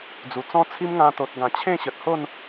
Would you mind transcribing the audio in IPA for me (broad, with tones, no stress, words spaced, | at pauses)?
d͡zu˨˩t͡sɔ̃˦t͡sʰi˦m ŋã˧t̪o˨t̚ɡã˨˩ t͡ɕʰẽ˥˧ɕə˨t̚ho˥˧n